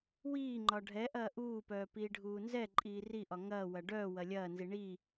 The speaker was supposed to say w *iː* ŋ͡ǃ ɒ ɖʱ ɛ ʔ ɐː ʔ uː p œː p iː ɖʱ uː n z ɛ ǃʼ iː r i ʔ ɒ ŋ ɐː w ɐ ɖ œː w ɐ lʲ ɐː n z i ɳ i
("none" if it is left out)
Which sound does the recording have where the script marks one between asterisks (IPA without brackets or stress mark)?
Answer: iː